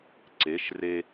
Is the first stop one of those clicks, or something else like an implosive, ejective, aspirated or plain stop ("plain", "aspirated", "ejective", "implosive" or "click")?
click